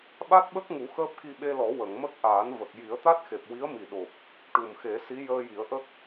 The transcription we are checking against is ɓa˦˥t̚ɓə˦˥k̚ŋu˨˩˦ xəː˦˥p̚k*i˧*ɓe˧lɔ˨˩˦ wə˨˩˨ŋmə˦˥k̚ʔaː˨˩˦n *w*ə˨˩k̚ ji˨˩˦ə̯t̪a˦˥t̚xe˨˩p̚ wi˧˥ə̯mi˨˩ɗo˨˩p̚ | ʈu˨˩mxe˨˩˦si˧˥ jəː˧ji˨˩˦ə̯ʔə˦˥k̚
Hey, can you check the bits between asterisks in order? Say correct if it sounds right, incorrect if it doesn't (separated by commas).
correct, incorrect